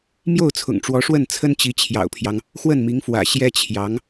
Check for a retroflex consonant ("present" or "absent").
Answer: present